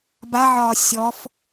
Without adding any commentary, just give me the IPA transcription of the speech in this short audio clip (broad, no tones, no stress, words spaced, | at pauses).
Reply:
baʕɒː sʲɔf